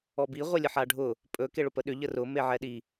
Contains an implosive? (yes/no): yes